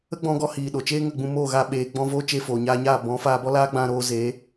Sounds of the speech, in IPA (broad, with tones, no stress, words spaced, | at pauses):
ə˦ɡ͡bɔ̃˧ɡɔ˧ hiː˨ ɗo˨t͡ʃeː˦ŋə˦˨ɡ͡bũ˧ mo˦˨ɣa˧ ɓeː˨ɡ͡bɔ̃˧voː˦ t͡ʃe˧foː˨ɲaː˧ɲaː˦˨ bɔ̃˨˦faː˧ bɔ˦laː˦ɡ͡bã˧ ɾoː˧zeː˨˦